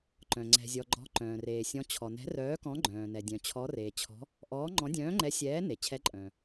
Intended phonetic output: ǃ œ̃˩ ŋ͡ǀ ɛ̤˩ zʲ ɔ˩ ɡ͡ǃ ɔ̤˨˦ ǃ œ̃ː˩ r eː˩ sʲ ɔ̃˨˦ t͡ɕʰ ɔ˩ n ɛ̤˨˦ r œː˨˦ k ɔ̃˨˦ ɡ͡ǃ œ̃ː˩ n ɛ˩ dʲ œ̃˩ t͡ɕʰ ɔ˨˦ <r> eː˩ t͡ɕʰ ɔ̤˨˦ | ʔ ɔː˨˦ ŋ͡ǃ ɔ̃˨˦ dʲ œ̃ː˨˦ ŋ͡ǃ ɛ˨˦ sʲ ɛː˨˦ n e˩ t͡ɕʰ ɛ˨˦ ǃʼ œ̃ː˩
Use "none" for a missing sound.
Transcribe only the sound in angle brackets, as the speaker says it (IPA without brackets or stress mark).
r